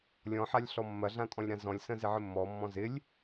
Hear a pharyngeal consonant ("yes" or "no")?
yes